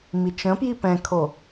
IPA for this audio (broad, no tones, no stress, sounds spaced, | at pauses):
m i t͡ʃ ə̃ p j i p ɛ̃ kʰ o